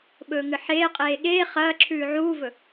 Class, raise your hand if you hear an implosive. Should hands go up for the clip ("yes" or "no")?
yes